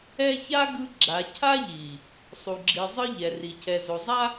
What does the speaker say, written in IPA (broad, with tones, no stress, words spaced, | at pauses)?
ɛ˦ ça˦ ɡɯ˦ ɡ͡ǁa˨cʰa˦ʎi˨ | sˤu˨ ɡ͡ǁi˨zˤɯ˦ ʎɛ˨ ri˨cʰɛ˨ zo˨zˤa˦